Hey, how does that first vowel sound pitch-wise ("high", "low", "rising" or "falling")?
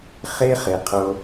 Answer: high